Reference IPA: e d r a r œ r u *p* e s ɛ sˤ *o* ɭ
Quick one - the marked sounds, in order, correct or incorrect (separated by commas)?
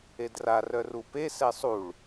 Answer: correct, incorrect